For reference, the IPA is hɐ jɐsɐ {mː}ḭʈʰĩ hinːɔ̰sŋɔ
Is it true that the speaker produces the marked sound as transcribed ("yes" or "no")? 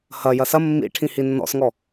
yes